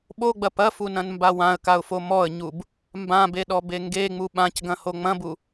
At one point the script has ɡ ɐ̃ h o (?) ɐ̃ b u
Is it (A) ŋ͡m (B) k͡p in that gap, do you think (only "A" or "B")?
A